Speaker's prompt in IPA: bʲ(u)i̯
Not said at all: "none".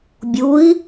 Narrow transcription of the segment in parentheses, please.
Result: u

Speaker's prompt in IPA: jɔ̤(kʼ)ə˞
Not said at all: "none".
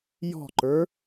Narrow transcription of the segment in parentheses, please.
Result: ǃ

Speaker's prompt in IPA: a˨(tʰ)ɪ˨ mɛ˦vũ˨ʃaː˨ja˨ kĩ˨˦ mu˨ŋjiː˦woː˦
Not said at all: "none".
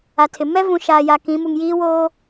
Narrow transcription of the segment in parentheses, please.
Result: tʰ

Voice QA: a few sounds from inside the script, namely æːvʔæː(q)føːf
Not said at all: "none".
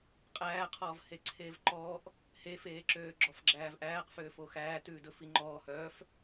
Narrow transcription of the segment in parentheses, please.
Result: q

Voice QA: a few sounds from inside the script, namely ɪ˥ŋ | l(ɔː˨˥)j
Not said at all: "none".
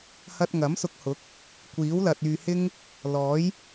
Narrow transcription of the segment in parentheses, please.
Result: ɔː˨˥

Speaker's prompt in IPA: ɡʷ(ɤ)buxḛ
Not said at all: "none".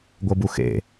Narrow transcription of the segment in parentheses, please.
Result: ɤ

